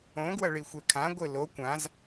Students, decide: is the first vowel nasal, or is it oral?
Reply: nasal